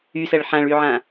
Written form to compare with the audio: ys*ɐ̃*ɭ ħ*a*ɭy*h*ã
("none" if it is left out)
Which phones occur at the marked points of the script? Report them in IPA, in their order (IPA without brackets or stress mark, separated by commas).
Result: ɐ, ã, ʕ